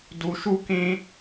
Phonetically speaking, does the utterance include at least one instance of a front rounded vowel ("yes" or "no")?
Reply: no